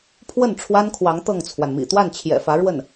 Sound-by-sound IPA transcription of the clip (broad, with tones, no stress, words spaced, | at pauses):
pʰwə˥˩n ʈ͡ʂʰwa˥nkʰwɑ˧˥ŋ t̪ɤ˥˩ŋt͡sʰwa˩nmḭ˨˩ t̪wa˥˩nt͡ɕʰjɛ̰˨˩fä˧˥ ɻwə˥˩n